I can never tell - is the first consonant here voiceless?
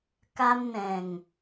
yes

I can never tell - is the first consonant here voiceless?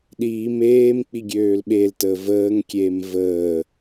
no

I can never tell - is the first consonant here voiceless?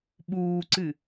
no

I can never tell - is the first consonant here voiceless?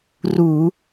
no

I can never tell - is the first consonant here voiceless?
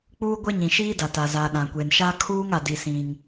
yes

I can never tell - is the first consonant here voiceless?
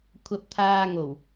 yes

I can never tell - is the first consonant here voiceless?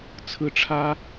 yes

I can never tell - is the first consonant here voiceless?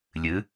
no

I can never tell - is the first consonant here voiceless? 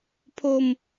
yes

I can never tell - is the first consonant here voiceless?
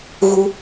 no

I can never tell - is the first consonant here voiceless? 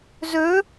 no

